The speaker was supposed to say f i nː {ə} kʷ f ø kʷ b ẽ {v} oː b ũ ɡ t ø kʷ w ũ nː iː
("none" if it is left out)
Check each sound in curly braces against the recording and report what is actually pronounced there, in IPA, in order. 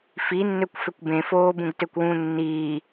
ø, f

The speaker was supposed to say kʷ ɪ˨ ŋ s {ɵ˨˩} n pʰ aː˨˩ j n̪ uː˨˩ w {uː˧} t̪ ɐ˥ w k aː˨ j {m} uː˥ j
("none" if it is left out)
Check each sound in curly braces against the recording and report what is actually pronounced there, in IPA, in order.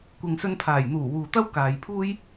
ɵ˧, uː˨, pʰ

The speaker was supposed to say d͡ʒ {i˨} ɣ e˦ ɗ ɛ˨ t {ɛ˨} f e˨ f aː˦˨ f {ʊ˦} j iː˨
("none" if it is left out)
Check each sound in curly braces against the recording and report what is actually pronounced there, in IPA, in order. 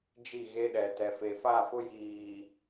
i˦˨, ɛ˨, ʊ˦

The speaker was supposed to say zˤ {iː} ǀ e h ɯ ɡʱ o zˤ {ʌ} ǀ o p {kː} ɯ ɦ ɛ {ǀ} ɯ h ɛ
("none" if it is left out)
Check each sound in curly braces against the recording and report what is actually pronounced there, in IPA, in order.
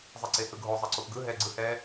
i, ʌ, ɡ, ɡ͡ǀ

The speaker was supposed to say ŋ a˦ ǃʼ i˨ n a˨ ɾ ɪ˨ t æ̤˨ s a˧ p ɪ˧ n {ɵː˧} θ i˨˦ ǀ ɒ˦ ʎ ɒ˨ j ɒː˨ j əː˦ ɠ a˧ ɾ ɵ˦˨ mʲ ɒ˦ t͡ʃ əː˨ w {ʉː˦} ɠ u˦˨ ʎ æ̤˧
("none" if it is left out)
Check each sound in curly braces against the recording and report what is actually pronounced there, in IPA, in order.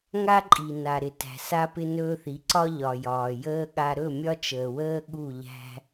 ɵː˧, əː˦

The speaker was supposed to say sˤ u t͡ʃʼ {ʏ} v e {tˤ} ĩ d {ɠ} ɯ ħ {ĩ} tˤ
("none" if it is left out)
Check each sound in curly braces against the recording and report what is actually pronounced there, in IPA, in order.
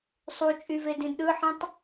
y, d, ɗ, ĩ

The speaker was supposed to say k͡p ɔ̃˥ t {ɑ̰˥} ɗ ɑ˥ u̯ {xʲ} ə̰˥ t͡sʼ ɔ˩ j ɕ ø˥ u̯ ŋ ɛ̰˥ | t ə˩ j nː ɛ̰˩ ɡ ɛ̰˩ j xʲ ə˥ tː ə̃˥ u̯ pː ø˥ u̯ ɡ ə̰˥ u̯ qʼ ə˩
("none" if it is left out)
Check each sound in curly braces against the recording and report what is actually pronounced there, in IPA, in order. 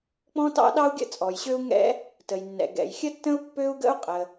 ɑ̰˥, ɡʲ

